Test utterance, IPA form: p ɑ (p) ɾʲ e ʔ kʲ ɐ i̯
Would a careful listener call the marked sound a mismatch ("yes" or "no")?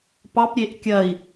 no